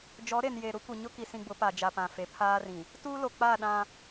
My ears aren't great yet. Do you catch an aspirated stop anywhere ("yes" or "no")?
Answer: yes